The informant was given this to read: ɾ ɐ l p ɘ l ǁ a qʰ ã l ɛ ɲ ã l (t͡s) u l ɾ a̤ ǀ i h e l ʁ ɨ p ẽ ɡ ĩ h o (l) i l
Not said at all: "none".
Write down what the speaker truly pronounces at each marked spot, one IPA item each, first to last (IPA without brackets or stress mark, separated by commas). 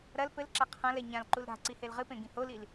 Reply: ǃ, l